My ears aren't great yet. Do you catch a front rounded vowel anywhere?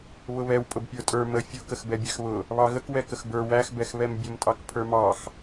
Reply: no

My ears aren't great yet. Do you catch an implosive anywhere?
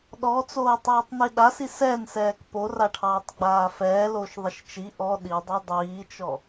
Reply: yes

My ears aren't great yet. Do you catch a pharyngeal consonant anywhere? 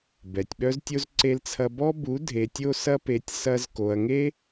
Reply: no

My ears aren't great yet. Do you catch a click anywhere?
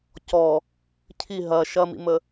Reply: no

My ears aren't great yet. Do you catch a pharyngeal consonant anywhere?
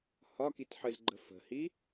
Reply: yes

